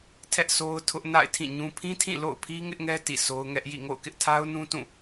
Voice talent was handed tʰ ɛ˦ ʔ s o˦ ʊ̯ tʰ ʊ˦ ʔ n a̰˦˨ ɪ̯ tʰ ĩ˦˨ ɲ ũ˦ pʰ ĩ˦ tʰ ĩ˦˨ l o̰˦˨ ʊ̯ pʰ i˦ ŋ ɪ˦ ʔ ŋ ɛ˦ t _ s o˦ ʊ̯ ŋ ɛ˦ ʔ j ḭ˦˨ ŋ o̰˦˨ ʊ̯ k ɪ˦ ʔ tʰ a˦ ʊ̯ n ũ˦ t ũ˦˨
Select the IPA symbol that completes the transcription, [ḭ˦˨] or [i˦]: ḭ˦˨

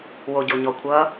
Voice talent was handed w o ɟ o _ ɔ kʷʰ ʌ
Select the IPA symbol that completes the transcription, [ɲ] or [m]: ɲ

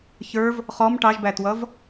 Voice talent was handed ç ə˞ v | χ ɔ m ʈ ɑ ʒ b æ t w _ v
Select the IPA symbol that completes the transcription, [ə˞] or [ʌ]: ʌ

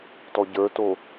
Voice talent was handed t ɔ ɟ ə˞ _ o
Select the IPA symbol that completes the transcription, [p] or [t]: t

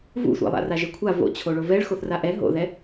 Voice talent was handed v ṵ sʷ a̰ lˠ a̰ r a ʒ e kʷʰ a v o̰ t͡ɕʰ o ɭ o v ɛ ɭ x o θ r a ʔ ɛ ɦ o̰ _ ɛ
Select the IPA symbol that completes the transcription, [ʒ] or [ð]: ð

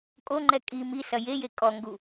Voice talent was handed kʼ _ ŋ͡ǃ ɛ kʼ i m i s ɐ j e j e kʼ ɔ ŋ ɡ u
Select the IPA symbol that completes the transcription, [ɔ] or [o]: o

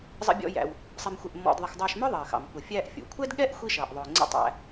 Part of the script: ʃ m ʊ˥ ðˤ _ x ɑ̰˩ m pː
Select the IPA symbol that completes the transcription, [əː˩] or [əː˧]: əː˩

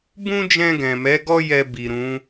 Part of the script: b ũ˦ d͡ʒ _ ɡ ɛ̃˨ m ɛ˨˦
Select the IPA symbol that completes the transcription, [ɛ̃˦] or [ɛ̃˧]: ɛ̃˧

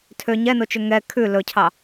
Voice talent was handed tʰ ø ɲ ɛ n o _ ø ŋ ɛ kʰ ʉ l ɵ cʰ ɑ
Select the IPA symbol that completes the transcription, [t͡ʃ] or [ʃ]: t͡ʃ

